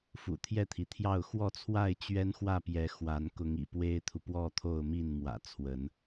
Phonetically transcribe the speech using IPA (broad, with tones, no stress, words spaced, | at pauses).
fṵ˨˩t̪ʰjɛ˥˨t̪ʰi˩t̪ʰjɑ˥˨ʊ̯ xwɔ˥˨t͡sʰwa˥˨ɪ̯ t͡ɕɥɛ˦nxwä˥˨pjɛ˨˦ xwa˨˦n kʊ˨˦ŋḭ˨˩ pwe˦ɪ̯t̪ʰu˨ pwɔ˥˨t̪ʰo˥˨ʊ̯mi˥˨nmwä̰˨˩ t͡sʰwə˨˦n